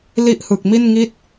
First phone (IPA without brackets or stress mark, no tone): l